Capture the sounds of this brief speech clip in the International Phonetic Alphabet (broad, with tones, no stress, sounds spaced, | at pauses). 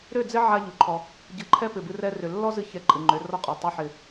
ɾ ʏ˦˨ d͡z ɪ˦ ʕ a˧ ʎ u˨ ǃʰ ɔ˧ | ɟ ɨ˨ ǃʰ ɛ˦ p ɪ˨ b ɨ˧ r ɛ˧ r ʏ˨ lː ɔ˦ z ɨ˧ ç ɛ˧ ǃʼ ɨ˨ ŋ͡ǃ ʏ˨˦ r ɔ˧ qʼ ɔ˨ tˤ u˧ ħ ɪ˧